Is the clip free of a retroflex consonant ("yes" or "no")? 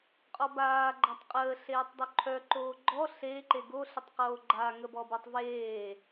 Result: yes